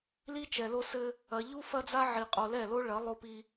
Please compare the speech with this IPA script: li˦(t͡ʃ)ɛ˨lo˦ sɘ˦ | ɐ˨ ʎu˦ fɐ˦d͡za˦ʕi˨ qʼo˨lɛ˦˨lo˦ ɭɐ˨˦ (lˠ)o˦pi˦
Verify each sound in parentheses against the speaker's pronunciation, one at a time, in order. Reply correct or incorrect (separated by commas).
correct, correct